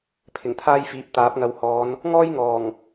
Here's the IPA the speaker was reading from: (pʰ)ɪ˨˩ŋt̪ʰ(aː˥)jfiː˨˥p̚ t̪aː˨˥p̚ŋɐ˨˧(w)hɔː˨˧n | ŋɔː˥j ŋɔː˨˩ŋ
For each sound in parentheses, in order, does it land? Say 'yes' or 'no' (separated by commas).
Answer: yes, yes, yes